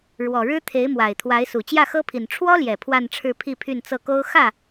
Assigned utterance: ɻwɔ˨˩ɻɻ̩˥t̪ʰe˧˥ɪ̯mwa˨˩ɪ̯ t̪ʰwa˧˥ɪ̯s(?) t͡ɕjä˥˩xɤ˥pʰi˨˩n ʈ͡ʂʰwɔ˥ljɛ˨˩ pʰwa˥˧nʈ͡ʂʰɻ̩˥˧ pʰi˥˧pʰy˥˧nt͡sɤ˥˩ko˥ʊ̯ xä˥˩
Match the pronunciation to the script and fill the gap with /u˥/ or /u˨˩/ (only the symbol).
u˨˩